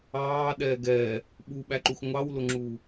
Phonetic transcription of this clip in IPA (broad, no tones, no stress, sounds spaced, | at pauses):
ɑː ɗ ɛː ɡ ɛː | ɓ u ɓ æ ǃ u x ŋʷ ɑ w l ʊ ŋ͡ǁ uː